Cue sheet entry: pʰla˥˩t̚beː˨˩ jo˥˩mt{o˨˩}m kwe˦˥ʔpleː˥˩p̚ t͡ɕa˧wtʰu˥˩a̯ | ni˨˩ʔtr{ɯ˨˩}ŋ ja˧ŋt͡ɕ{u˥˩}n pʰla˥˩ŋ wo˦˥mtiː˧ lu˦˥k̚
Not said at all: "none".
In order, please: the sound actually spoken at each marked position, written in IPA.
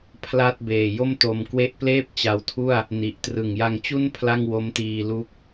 o˧, ɯ˨˩, u˥˩

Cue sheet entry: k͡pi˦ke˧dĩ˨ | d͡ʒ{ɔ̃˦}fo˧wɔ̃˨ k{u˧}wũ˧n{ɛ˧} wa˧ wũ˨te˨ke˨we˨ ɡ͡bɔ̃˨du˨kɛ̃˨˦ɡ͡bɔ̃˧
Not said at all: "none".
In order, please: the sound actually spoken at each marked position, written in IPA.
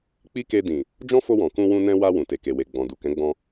ɔ̃˦, ũ˧, ɛ̃˧

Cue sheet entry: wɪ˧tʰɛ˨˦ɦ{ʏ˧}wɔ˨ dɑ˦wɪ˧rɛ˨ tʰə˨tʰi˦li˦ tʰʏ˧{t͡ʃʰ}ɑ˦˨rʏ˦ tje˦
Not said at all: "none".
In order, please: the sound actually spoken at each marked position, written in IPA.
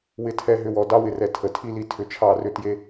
ʏ˧, t͡ʃʰ

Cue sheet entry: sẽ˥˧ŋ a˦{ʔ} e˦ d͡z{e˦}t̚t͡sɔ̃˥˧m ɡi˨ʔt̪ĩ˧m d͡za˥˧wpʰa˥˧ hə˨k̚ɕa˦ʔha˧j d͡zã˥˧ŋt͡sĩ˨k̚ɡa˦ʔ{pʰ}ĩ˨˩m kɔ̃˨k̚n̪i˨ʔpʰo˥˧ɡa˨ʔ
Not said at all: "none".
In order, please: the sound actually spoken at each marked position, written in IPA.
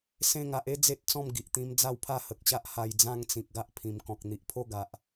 ʔ, e˦, pʰ

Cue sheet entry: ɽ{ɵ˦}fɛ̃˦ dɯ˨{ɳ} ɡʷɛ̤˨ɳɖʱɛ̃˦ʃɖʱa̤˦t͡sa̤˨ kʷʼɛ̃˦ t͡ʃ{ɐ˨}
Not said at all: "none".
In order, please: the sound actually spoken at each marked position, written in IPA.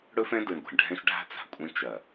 ɵ˦, ɳ, ɐ˨

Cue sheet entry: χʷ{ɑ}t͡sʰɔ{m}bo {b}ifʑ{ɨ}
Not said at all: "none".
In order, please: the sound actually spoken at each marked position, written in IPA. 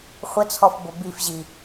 ə, f, b, i

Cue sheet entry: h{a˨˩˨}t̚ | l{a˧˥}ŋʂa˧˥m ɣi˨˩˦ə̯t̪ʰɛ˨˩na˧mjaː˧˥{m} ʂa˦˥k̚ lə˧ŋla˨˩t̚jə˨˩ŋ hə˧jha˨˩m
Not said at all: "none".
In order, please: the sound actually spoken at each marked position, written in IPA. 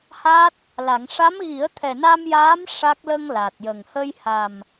a˦˥, a˨˩˨, m

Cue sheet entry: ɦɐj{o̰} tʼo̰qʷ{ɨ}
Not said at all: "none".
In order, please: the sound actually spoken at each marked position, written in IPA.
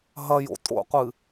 o̰, ɨ

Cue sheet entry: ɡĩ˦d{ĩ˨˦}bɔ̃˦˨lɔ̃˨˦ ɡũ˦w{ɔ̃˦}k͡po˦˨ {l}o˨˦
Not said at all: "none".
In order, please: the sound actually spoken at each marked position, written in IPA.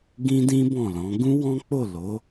ĩ˦, ɔ̃˦, l

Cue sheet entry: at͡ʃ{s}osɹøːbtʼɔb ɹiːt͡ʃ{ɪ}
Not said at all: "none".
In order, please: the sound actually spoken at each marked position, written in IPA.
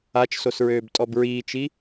s, i

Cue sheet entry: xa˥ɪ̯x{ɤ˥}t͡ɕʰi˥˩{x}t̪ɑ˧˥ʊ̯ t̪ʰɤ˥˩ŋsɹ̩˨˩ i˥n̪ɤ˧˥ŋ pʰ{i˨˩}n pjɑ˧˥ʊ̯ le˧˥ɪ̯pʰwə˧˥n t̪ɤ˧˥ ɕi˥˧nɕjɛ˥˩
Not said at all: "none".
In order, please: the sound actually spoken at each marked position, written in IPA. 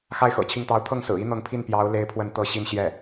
ɤ̰˨˩, ŋ, i˥˩

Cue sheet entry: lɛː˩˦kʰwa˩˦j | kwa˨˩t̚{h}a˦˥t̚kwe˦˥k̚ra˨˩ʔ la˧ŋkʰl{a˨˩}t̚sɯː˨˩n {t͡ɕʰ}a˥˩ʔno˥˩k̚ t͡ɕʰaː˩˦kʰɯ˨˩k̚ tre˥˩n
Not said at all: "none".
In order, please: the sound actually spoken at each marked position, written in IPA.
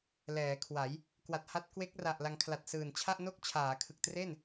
h, a˨˩, t͡ɕʰ

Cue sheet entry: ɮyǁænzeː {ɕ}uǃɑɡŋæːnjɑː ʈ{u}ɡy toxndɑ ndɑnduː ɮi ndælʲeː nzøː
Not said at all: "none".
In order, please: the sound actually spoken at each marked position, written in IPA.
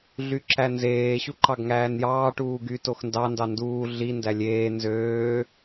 ɕ, uː

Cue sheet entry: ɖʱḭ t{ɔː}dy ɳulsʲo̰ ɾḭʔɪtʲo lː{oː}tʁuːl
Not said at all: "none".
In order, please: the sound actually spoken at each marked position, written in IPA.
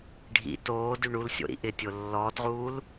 oː, ɔː

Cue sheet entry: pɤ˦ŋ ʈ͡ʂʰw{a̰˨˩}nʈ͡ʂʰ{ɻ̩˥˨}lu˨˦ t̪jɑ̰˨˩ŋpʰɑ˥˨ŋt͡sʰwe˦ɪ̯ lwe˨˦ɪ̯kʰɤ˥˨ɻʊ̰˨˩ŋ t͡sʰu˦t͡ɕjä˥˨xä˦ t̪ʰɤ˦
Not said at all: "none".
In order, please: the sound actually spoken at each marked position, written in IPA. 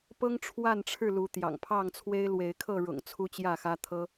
a˥˨, ɻ̩˥˨

